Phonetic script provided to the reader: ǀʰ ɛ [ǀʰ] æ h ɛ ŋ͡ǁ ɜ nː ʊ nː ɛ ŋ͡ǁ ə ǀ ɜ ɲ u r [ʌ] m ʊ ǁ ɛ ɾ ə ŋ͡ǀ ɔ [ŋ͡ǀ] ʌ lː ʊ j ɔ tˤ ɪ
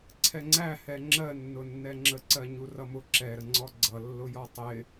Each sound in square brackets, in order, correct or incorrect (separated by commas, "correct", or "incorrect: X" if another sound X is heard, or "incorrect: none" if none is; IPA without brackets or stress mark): incorrect: ŋ͡ǀ, correct, incorrect: ɡ͡ǀ